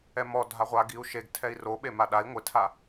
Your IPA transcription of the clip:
ɛ m ɔ dʱ a ʁʷ a ɡ i u̯ ʃ e ɡ tʰ ɛ i̯ r o ɓ e m a ɗ a i̯ ŋʷ ɪ tʰ a

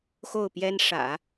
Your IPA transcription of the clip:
x o˥˩ ʊ̯ p j ɛ˥ n ʂ ä̰˨˩˦

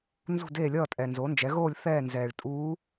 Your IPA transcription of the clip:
n z ṳ˥˨ d eː˥˨ lʲ ʌː˥˨ tʼ ɛ˨ n z o˩˥ n d͡ʒ ɛ˩˥ ɣ oː˥˨ lʲ θ ɛː˥˨ n z ɛː˨ ɭ tʼ uː˧˥

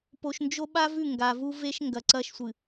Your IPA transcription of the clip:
p o˨ ʃ n d͡ʒ o˦ ɓ a˦ v ʉ˦˨ ŋ ɡ a˨ v u˦ v e˦ ʃ ŋ ɡ ɐ˨ ǀ ɐː˦ ʃ sʷ ɨ˨

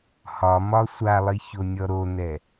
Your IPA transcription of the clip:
h ɒ m ɒ sʷ a lˠ i ç o nʲ ɔ ɾ o n ɛ

